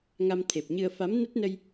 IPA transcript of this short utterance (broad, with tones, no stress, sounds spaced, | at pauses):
ŋ a˧ m t̪ʰ e˨˩ p̚ ɲ ɨ˧ ə̯ f a˨˦ m n ə˦˥ t̚ n ə˧ j